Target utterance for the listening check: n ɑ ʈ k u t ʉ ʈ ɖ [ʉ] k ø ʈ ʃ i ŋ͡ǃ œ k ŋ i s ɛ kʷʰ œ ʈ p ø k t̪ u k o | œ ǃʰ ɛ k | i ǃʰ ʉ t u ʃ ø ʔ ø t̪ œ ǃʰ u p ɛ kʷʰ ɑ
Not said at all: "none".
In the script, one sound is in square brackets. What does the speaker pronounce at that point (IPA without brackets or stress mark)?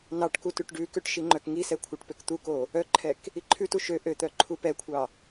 ʉ